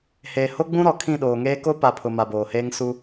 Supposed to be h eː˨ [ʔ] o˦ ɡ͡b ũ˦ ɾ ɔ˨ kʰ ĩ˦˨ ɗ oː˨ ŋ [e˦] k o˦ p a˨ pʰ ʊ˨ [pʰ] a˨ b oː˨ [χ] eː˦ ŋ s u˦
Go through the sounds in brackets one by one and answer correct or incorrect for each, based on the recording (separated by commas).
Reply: incorrect, incorrect, incorrect, incorrect